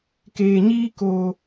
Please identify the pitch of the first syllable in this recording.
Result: low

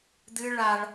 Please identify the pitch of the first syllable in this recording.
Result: high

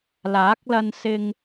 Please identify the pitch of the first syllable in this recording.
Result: rising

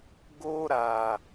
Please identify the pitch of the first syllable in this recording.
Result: high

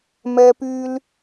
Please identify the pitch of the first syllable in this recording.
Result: high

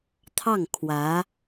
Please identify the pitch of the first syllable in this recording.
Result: falling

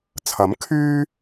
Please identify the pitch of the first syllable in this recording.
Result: rising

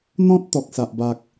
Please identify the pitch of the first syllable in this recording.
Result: high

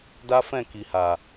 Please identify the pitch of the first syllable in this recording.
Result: high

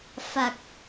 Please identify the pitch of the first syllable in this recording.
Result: low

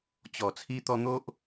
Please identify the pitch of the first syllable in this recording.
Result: low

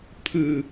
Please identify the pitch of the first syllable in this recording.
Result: low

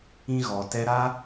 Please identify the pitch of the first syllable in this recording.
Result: high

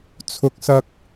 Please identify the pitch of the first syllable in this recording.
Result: low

